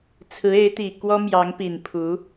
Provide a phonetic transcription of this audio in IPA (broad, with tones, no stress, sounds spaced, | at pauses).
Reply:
t͡sʰ ɹ̩˧˥ e˧˥ ɪ̯ t̪ i˨˩ k w ɔ˥ m j ɑ˧˥ ŋ p i˨˩ n pʰ u˧˥